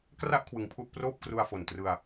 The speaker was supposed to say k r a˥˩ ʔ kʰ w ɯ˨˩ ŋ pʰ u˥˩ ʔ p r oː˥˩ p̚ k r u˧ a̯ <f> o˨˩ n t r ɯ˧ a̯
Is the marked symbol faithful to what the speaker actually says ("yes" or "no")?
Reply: yes